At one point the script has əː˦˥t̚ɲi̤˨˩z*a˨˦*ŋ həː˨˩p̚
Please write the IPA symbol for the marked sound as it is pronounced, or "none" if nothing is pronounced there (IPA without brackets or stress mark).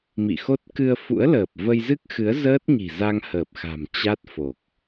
a˧